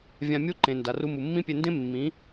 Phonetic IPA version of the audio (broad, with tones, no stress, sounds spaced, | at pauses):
vʲ ã˧ mʲ u˦ ǃ ẽ˨ n d a˨ r u˧ m u˨ mː ĩ˦ pʲ e˧ n d ẽ˦ mː ĩ˨˦